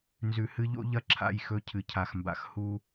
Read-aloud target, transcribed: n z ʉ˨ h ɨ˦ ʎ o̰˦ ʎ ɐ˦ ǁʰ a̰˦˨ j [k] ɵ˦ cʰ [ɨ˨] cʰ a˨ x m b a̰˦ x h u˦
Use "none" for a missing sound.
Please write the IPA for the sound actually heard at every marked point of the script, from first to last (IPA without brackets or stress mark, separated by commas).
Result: x, ɨ˨